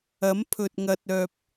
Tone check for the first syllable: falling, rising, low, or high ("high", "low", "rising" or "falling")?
rising